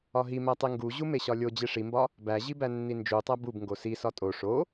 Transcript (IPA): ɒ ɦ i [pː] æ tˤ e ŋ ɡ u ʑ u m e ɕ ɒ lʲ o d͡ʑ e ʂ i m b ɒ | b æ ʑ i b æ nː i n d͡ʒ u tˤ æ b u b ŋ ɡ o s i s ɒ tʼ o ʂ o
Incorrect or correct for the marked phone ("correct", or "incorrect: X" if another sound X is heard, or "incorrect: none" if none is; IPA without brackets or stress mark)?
incorrect: m